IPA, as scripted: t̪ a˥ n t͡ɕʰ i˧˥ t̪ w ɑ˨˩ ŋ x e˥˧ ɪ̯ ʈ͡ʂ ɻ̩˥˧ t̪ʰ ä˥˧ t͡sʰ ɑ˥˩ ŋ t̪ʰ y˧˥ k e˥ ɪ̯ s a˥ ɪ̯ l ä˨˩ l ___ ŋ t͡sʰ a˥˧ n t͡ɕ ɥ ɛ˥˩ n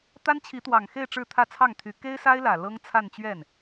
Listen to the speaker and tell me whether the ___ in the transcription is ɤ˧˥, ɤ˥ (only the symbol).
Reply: ɤ˥